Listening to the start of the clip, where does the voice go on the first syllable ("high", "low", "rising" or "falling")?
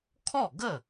falling